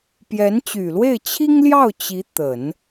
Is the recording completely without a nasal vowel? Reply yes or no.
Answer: yes